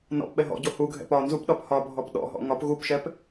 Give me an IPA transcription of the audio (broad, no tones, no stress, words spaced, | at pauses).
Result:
nɔ̰p ɓɛɦɔ̰ɟo huɡʱɛ̰p ɒ nzupɗɒp hɒbʱɔp ɗɔ̰ɦɔ̰ ŋɒp ɣupʃɛp